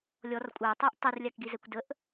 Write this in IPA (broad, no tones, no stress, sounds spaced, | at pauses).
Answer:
lʲ ɔ r kʷʼ a tˤ ɛ ʔ tˤ o r lʲ a k ɡ i z ɛ kʷ d ə ʔ